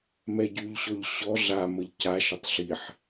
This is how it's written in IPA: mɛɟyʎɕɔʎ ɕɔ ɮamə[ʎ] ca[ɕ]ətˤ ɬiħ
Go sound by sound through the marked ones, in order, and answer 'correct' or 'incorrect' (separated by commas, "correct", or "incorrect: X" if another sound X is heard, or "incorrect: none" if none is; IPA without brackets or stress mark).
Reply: correct, incorrect: ʃ